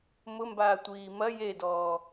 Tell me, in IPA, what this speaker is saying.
m ʊ m b aː tʷ iː m ɐ j e d ɔː

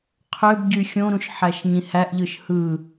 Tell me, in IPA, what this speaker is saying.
qʰ ø b ɟ y xʲ õ ɾ ũ ʃ ħ æ ʃ ɲ ĩ h æ ʔ ʎ ɯ ʃ h ɯ

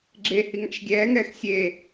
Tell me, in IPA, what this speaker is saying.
ɡ͡ǁ e h i ŋ a̰ ʃ ɡʲ ɛː ŋ ɛː x sʲ eː

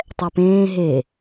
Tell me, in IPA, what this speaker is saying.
tˤ ɛ p ẽː ɦ e

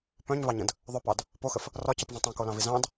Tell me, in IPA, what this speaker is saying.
p œ̃ ɲ v ɑ ɲ ə̃ d | ðˤ œ p ɑ d | p o x ə f | r ɒ c ə p v œ̃ tˤ õ k o l ɑ̃ v i z ɑ̃ d

